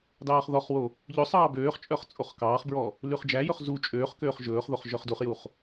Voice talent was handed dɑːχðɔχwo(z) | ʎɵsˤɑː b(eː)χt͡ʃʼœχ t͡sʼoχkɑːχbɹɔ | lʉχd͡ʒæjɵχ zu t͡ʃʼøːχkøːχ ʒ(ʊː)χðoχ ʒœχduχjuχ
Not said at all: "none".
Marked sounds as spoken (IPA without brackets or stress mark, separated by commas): none, øː, ɵː